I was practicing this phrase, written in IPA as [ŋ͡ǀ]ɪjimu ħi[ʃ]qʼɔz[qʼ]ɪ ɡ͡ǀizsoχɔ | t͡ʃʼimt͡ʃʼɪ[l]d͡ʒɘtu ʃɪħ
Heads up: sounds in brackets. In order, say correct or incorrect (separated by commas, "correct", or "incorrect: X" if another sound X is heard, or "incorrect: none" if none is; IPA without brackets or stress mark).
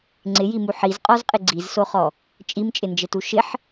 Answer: correct, incorrect: z, correct, incorrect: n